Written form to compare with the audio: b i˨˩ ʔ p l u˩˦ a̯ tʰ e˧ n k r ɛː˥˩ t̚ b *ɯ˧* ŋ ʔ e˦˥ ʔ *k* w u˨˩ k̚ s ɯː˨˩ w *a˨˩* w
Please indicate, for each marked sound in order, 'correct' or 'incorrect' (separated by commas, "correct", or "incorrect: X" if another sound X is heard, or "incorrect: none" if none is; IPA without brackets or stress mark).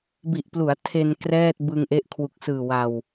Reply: correct, incorrect: kʰ, correct